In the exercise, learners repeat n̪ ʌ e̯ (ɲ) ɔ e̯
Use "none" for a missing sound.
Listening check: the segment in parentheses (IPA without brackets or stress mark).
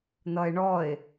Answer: ɳ